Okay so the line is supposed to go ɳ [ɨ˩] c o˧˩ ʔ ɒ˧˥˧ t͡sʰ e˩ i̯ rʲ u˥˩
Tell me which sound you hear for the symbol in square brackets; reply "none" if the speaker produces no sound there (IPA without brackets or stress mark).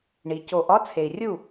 i˩